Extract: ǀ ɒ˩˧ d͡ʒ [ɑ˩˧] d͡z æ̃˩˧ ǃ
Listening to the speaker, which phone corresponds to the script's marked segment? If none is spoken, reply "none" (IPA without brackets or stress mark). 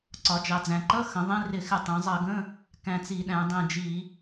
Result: ɑ˩˧